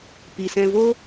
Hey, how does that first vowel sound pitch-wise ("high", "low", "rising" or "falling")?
low